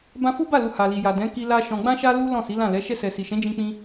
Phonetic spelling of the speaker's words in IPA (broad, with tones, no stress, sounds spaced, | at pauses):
b ã˧ f u˦ b a˦˨ l u˨ h a˨ l i˨ j a˨ d ɛ̃˨˦ k i˧ l a˧ ʃ ɔ̃˨ ɡ͡b ã˧ ʃ a˧ l u˦ l ɔ̃˦˨ s i˨˦ l ã˦˨ l ɛ˨˦ ʃ ɛ˧ s ɛ˨ s i˨ ʃ ɛ̃˨˦ d͡ʒ ĩ˧ k͡p ĩ˧